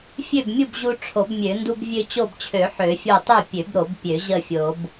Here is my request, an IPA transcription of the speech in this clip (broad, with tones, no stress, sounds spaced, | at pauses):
fʲ ø˥˨ b mʲ u˥˨ b ʑ u˦ ʈ͡ʂʰ o˨˩˦ b mʲ ø˨˩˦ n d u˦ b vʲ ø˦ t͡ɕ o˥˨ b t͡ɕʰ ø˨˩˦ ħ ø˨˩˦ fʲ o˥˨ tˤ ø˥˨ pʲ ø˨˩˦ b ɾ o˨˩˦ b pʲ ø˨˩˦ ʑ ə˥˨ fʲ o˨˩˦ b